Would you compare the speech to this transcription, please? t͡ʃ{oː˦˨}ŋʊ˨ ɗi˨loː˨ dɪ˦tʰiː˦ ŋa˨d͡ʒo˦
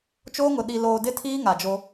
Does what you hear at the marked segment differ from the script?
yes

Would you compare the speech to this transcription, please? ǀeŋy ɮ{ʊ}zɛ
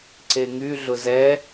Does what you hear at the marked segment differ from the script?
no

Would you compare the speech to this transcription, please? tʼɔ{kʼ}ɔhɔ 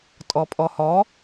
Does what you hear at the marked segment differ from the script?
yes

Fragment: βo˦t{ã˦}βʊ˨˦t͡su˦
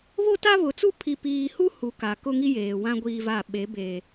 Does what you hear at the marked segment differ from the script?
yes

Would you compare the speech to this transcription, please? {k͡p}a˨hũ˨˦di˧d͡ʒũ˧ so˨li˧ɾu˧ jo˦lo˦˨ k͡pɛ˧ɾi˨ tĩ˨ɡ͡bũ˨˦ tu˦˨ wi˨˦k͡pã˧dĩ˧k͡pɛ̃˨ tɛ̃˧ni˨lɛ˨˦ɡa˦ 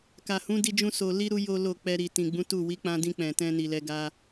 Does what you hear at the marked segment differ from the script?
yes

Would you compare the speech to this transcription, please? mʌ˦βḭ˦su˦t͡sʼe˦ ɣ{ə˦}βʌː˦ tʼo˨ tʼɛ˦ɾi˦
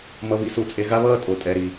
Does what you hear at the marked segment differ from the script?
yes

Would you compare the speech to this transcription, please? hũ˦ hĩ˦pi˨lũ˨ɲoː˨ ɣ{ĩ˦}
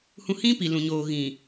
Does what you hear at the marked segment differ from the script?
yes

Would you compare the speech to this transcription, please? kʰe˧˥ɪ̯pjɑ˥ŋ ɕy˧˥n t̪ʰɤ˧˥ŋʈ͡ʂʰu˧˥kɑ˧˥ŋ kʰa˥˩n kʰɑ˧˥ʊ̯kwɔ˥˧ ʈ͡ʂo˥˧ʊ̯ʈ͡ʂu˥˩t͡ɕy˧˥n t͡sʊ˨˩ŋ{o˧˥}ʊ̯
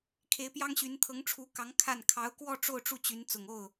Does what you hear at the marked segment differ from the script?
yes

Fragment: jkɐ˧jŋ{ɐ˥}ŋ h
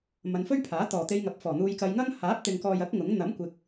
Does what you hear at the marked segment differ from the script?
no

